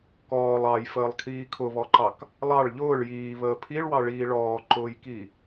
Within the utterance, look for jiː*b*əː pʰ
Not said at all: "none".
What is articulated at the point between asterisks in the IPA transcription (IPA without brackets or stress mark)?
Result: β